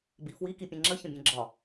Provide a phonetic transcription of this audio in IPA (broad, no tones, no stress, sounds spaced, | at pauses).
b i f w i k i pʲ ẽ ŋ͡ǁ ə ç ə̃ bʲ ẽ ɡ͡ǁ ɒ